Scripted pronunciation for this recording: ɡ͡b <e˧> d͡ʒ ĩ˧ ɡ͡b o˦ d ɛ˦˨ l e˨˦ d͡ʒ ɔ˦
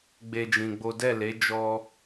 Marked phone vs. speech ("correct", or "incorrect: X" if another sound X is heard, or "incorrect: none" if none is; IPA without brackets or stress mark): incorrect: e˦